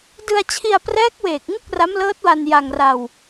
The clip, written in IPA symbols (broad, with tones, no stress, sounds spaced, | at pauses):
d ɯ˧ a̯ t͡ɕʰ i˧ a̯ p r ɛː˦˥ k̚ w eː˨˩ k̚ ŋ u˥˩ k̚ r a˦˥ m l ɤː˦˥ t̚ w a˧ n j a˧ ŋ r a˧ w